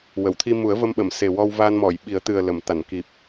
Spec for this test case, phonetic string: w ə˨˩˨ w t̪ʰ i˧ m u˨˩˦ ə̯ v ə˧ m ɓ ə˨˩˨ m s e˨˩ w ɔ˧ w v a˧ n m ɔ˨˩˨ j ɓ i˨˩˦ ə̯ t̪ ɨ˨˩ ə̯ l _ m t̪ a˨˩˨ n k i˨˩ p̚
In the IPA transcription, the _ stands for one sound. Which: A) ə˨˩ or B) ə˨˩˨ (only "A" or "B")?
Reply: B